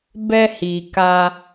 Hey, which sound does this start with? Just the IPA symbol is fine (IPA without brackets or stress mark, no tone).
b